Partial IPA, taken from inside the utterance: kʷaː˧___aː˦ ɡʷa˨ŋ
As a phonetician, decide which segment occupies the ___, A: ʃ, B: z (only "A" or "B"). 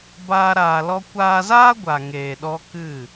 B